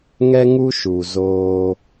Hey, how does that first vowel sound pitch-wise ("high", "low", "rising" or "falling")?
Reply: high